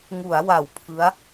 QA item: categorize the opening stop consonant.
aspirated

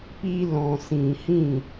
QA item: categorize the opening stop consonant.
plain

